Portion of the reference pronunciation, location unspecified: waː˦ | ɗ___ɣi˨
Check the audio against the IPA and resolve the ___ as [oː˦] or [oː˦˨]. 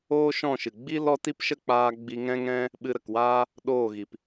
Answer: oː˦˨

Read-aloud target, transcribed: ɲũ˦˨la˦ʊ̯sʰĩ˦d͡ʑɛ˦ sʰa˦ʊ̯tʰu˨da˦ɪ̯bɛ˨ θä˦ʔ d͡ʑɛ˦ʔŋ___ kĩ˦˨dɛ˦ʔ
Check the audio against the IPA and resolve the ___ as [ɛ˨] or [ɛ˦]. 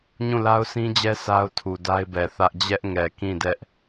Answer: ɛ˨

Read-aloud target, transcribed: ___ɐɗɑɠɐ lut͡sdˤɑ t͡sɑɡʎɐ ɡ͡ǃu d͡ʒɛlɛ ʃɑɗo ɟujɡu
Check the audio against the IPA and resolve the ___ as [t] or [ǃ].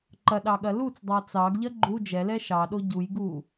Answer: ǃ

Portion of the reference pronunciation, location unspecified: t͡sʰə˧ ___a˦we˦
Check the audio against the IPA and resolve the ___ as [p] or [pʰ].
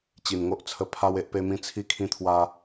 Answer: pʰ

